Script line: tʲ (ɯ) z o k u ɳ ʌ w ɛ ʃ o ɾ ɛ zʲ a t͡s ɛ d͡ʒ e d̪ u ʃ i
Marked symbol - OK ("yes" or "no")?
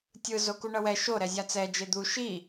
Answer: yes